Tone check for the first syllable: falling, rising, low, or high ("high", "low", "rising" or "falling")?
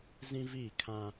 high